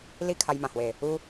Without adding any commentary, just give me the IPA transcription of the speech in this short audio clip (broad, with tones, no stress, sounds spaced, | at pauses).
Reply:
l i˥˧ kʰ a˧ j m ã˨˩ h w e˨˩ | u˦